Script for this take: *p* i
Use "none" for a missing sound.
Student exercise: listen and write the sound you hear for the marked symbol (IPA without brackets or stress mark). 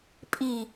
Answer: pʼ